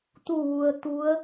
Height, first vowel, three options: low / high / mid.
high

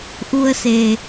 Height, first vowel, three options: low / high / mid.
high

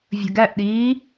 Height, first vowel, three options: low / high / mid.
mid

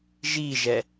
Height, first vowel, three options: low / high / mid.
high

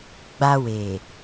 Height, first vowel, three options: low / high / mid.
low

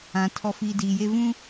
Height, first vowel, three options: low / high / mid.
low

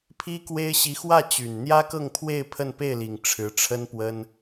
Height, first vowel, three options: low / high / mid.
high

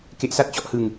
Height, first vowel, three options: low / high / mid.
mid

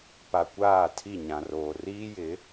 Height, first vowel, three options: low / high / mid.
low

